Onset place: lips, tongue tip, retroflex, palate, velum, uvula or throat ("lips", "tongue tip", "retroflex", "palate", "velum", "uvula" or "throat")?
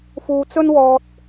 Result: lips